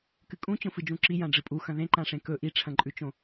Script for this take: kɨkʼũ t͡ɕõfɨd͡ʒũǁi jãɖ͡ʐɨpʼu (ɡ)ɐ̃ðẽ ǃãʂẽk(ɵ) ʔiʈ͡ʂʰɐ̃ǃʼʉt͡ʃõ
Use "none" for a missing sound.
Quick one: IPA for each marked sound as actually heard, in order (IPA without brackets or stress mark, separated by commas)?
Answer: x, ɵ